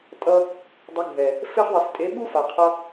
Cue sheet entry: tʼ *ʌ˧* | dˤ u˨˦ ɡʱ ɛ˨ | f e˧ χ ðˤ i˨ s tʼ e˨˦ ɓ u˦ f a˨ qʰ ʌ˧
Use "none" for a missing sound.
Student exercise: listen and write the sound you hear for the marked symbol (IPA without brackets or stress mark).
ʌ˧